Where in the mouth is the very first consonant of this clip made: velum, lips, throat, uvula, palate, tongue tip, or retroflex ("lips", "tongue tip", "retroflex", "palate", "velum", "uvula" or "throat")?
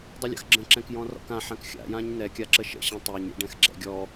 tongue tip